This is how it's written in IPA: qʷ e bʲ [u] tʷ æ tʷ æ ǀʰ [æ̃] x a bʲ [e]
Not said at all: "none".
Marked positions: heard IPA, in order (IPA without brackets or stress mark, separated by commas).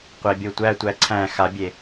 o, æ̃, e